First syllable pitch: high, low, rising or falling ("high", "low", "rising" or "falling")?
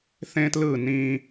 high